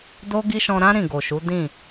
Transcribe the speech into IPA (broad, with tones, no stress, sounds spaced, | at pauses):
d o˦ ɡ i˦ ʃ ɔ̃˧ ɾ ã˦ ɾ ĩ˦˨ ɡ o˨ ʃ u˨˦ d ĩ˦˨